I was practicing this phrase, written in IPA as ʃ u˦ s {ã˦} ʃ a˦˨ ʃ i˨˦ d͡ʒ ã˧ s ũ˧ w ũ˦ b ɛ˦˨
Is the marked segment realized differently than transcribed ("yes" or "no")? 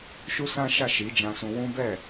no